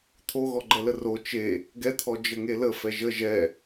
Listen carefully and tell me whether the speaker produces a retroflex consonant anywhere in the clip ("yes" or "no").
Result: no